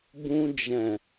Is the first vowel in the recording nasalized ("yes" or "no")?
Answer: yes